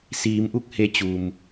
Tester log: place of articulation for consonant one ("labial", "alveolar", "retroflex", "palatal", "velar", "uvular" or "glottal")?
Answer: alveolar